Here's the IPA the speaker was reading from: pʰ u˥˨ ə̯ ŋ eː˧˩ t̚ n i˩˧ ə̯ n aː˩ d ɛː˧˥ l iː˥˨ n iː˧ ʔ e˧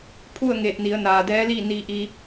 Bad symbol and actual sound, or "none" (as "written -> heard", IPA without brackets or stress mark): e˧ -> i˧